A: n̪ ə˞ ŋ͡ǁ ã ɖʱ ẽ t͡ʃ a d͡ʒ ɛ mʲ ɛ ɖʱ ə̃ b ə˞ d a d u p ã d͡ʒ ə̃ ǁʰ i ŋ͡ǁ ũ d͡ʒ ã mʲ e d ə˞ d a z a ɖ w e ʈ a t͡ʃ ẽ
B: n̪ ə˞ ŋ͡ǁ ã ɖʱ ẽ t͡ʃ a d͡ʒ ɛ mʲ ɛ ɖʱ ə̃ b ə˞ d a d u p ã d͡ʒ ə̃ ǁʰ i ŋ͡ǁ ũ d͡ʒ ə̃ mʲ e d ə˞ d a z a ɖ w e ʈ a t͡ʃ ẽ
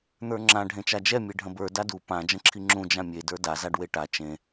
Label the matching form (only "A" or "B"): A